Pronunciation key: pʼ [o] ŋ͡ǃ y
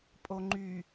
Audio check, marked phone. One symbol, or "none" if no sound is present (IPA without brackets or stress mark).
o